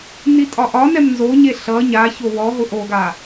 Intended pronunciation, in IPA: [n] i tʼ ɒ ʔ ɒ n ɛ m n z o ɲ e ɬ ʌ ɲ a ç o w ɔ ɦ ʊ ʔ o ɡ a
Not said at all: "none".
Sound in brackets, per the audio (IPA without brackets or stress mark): n